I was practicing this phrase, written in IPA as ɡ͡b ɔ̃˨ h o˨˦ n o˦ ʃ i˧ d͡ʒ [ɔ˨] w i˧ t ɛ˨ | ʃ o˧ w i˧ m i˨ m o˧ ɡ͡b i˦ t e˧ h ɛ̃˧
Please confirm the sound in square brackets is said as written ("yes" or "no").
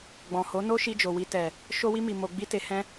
no